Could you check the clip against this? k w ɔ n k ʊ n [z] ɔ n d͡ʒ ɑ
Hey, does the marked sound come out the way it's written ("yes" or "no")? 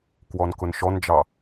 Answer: no